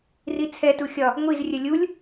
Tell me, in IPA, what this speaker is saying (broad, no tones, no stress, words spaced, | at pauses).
rit͡sʰɛ tuxʲɒ | ŋʷiz rʲəlʲulʲ